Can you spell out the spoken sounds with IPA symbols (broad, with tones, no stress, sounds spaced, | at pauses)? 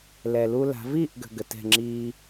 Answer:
l ɛ˨ l u˦ l a̤˨˦ v iː˦˨ ʔ ɡ ə̤˨ ɡ ə˨ t ɛ̤˦˨ ŋ͡ǁ iː˦